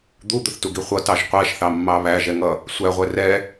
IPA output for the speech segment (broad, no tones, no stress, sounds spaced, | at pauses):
d̪ u d̪ ʊ θ t u ɡ i χʷ ʌ t ɑ ʒ qʷ æ ʃ θ ɑ mː ɑ β æ ʒ ɛ ŋ ʌ | sʷ æ ʁʷ ɛ r ɛ